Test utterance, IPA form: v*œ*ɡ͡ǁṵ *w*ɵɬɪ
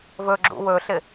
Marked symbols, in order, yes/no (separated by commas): no, yes